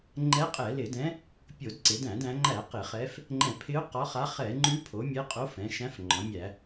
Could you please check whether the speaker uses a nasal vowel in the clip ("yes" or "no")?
yes